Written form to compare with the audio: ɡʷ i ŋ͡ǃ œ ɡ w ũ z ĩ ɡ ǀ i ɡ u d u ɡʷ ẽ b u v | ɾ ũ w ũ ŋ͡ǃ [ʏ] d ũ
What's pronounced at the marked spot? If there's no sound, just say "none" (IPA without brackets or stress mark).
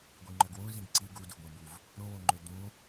ʏ